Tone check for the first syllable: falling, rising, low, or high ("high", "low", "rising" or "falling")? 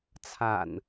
low